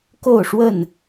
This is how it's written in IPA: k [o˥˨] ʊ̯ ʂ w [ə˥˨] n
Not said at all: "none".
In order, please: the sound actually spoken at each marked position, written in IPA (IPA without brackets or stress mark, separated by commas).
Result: o˥˨, ə˥˨